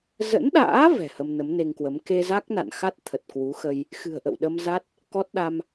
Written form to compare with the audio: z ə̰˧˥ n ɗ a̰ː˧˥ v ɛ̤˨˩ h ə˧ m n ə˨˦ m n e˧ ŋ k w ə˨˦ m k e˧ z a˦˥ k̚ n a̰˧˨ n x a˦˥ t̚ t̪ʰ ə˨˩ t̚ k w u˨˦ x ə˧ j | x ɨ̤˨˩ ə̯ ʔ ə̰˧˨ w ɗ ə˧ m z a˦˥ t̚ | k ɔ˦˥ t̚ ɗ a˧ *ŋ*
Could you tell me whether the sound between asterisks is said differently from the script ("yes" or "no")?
yes